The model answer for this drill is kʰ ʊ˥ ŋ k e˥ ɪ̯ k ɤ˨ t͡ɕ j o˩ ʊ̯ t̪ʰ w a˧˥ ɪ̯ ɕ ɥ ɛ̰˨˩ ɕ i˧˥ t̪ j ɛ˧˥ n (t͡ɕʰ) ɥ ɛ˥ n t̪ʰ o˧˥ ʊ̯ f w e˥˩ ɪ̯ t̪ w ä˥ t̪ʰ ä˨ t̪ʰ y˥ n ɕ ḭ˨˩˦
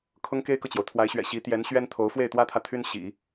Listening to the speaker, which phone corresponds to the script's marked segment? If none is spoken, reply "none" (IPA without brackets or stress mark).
ɕ